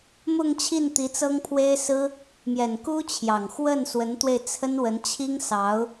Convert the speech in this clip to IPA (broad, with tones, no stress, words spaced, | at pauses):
mʊ˥˧ŋt͡ɕʰi˥˩nt̪i˧˥ t͡sɤ˥ŋpʰwe˥ɪ̯sɹ̩˥ | mjɛ˨˩nku˥ t͡ɕʰjɑ˨˩ŋ xwə˥˩nswə˧˥nt̪we˧ɪ̯ t͡sʰə˥nwə˧˥nt͡ɕʰi˥ŋsɑ˧˥ʊ̯